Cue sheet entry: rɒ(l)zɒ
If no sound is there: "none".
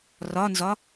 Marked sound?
n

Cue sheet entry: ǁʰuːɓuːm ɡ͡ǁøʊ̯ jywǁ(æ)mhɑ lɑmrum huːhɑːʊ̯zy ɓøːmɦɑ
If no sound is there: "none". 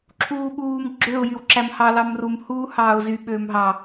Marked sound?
æ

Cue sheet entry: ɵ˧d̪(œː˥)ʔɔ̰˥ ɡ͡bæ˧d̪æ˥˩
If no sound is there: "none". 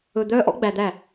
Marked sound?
œː˥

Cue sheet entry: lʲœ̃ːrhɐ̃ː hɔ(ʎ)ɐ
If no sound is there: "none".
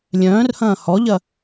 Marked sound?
ʎ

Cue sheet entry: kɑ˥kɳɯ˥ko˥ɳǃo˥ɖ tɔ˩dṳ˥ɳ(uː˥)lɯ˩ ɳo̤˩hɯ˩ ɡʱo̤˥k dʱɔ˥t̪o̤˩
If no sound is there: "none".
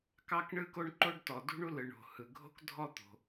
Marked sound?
u˥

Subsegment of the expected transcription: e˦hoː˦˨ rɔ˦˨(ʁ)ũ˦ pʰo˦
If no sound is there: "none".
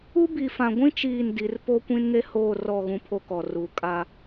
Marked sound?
ɣ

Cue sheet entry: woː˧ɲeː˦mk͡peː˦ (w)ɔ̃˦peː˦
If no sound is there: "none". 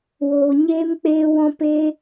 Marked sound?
w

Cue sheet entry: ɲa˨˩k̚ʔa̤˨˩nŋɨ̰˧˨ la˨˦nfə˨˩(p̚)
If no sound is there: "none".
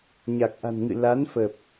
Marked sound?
p̚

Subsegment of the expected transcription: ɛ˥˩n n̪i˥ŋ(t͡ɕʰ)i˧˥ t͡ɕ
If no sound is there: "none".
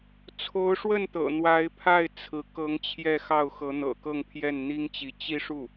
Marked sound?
t͡ɕ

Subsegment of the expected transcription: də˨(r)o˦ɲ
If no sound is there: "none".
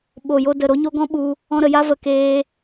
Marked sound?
ɾ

